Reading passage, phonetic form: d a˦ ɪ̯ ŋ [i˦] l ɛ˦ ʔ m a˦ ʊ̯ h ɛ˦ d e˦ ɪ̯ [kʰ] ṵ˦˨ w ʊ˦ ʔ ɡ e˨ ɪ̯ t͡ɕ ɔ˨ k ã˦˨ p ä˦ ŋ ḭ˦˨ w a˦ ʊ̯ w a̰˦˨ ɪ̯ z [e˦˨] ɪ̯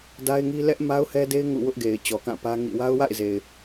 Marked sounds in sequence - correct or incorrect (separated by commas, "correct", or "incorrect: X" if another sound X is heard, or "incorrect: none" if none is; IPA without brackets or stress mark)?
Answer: correct, incorrect: ŋ, incorrect: e˨